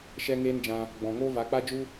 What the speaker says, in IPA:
ʃ ɛ˦ ŋ eː˦ n d͡ʒ ã˧ | ɡ͡b ɔ̃˨ ŋ oː˦ v a˨˦ k͡p a˦ d͡ʒ u˦

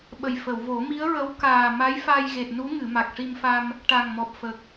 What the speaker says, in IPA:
ɓ ə˨˩ j f ə˨˩˨ w v o˨˩˦ m i˧˥ ə̯ ɹ ə˧˥ w k aː˨˩ m a˧˥ j f a˧ j ɣ e˨˩ t̚ n u˧˥ ŋ ɨ˨˩˨ m a˨˩ k̚ ʂ i˧ m f a˧ m | ʈ a˨˩ ŋ m ɔ˨˩ p̚ f ə˨˩ k̚

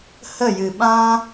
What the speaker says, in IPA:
h ə˦˨ j ɨ˨ ɓ ã˦

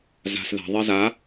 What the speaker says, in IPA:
z a̤ s ð a̤ ðˤ e z a

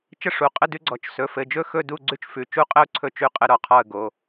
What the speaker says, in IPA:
t͡ʃ ə˥˨ ʂ u˩˧˩ qʼ ə˥˨ d ʉ˦ ɡ͡ǀ ɔ˩˧˩ t͡ʃ s ɵ˩˧˩ f ɘ˩˧˩ d͡ʒ ɵ˥˨ x ɵ˥˨ d u˥˨ ɡ͡ǀ ʉ˦ t͡ʃ f ʉ˩˧˩ t͡ʃ u˦ qʼ ə˦ ʊ̯ ǀʰ ɵ˥˨ t͡ʃ ʉ˥˨ qʼ ə˦ ɾ ɔ˩˧˩ qʰ ɔ˥˨ ə̯ ɡ o˩˧˩

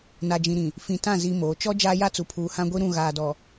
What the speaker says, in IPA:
n a˨ d͡ʒ ĩ˨ ɾ ĩ˨ | f ĩ˨ t ã˦˨ z i˦ m oː˨˦ t͡ʃ ɔ˦ d͡ʒ aː˦ j a˦ t͡s u˨ pʰ uː˨ h ã˦ ɡʷ i˦ ɾ ũ˦˨ ɣ aː˨ d ɔ˨

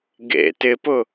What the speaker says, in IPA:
ɡ ḛ t ɪ p ʊ

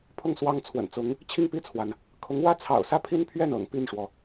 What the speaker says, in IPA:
pʰ ʊ˥˩ ŋ s w ɑ˥ ŋ t͡sʰ w ə̰˨˩ n t͡s ʊ˧˥ ŋ | t͡ɕʰ i˥˧ ŋ p i˥˩ t͡sʰ w a˩ n | kʰ ʊ˧˥ ŋ w ä˥ t͡sʰ ɑ̰˨˩ ʊ̯ s ä˥˩ pʰ i˥ n pʰ ɥ ɛ˥˩ n ɤ̰˨˩ ŋ p i˥˩ n ʂ w ɔ˩

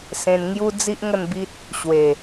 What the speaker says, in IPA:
s ẽ˧ n ŋ j u˦ d͡z i˦ ʔ ŋ ə˥˧ n b i˦ t̚ | ɕ w e˨˩

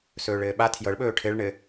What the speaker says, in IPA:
s ɵː ɭ ɘː ɓ a tʰ j ɤ ɭ ɓ ɵː ʈʰ ɘ ɭ ɳ ɘ

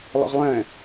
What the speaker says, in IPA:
lˠ ə̰ ʁ lˠ ɛ̃

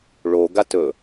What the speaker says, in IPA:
ɭ o ɡ a t ɵ

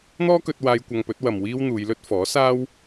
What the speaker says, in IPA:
n̪ ɔː˥ k ɵ˧ t̚ w aː˧ j kʷ ɐ˧ ŋ p ɵ˨˥ t̚ w ɐ˨ m w iː˥ w n̪ uː˨˧ j l ɵ˥ t̚ f ɔː˨˥ s aː˥ w

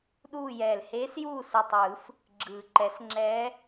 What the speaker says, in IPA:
ɗ uː˦˨ j ɛː˨˩ l h eː˧˥ s j uː˦˨ s u˨˩ tˤ ɯː˨˩˦ f | ɡ͡ǁ ɯː˨˩ ǃ ɛ˨˩˦ s ŋ͡ǁ ɛː˧˥

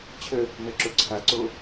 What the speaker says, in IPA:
t͡ɕʰ ə | n ɜ ǁ o ǀʰ a ǀ o

